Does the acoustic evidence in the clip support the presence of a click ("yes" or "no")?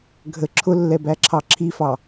yes